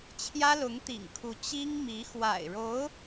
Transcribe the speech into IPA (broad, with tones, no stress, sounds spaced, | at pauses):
t͡ɕʰ j ä˥ l ʊ˧˥ ŋ t̪ ḭ˨˩ ŋ kʰ u˧˥ t͡ɕ i˥ ŋ m i˧˥ x w a̰˨˩ ɪ̯ ɻ o˧˥ ʊ̯